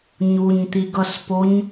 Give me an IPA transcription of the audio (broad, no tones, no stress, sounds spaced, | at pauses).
ɲ u ɲ t̪ i ɡ ʌ s p o ɲ